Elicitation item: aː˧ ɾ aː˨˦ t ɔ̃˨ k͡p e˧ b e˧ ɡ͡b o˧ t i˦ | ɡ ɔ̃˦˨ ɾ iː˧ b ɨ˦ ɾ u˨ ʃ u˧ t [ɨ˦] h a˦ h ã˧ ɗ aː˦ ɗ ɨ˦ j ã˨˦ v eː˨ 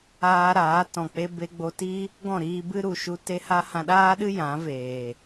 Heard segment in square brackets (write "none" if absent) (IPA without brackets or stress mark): e˦